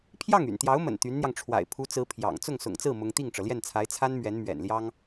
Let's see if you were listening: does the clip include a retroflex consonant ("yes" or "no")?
yes